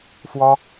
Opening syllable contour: high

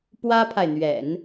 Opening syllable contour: high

